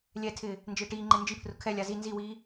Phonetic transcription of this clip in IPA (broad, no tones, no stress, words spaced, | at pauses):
lʲɛtʰɪː | nd͡ʒɪːʈiːŋ͡ǃe nd͡ʒipʰrʊ kʰɛlʲa zi nziwiː